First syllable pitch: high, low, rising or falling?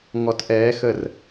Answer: rising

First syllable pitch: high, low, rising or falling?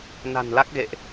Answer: low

